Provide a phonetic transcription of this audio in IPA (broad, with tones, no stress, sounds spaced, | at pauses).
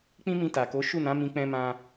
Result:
k͡p ĩ˦ m ĩ˧ t a˨ k o˨˦ ʃ u˦˨ n ã˨˦ m ĩ˧ k͡p ɛ̃˧ m ã˧